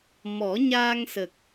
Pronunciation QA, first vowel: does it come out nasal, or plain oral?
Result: oral